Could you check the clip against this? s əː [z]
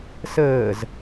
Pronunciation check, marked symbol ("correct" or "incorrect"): correct